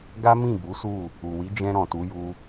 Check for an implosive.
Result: absent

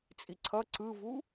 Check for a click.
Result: present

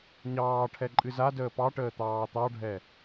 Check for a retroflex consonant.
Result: present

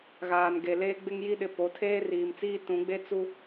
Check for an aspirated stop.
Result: present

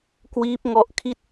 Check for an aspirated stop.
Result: present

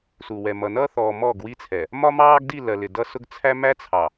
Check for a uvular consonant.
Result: absent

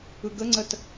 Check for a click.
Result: present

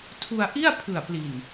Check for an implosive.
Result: absent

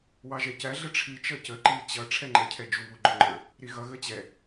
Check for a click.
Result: present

